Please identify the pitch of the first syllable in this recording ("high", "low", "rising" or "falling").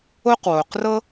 high